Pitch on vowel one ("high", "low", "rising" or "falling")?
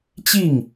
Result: falling